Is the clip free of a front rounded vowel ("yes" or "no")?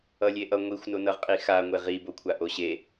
yes